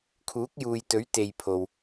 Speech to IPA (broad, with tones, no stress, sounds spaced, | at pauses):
kʰ uː˨˥ k̚ j uː˨ j t̪ ɵ˨˥ ɥ t̪ e˨ j pʰ o˧ w